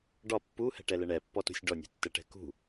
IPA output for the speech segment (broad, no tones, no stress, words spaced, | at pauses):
ɖɒ pːuhɛ̤ʈɛlɛ ɳɛpːɔtṳsʲ ɖɔnʲṳtːɛʈɛ̤ kṳ